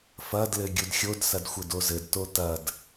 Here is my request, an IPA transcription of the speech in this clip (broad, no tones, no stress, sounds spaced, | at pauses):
f ɐ d l ɘ ɡʲ u d xʲ o d s ɐ d xʷ ɘ d o z ɘ d t o t ɐ d